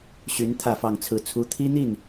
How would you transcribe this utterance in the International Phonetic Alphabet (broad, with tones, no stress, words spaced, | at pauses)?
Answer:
ɕy˧˥n t̪ʰä˥˧fɑ˥˧ŋt͡sʰɹ̩˥˩t͡sʰu˥ t̪ʰi˥n̪i˥˩n